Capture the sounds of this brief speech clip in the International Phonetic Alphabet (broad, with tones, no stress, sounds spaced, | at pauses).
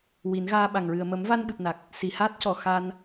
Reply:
w i˨˩˦ n ɣ aː˧ ɓ a˨˩ ŋ ɹ ɨ˨˩ ə̯ m ə˨˩˦ m v a˧ n ɓ ɨ˨˩ p̚ n a˨˩ k̚ | s i˨˩˨ h aː˦˥ t̚ c ɔ˨˩ x a˧ n